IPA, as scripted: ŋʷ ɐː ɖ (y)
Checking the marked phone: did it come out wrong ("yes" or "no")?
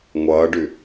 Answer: no